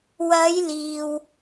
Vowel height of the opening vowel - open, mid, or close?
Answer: open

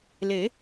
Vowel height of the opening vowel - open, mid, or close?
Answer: mid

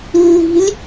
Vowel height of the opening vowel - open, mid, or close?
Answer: close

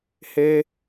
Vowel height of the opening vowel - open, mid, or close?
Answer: mid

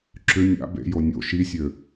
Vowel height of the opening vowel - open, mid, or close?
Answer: close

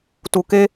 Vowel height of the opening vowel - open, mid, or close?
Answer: close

